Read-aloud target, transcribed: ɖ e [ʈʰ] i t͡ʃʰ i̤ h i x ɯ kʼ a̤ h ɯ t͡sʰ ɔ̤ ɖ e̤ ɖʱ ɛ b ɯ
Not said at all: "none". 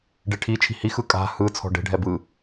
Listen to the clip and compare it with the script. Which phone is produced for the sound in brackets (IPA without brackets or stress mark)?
ʈʰ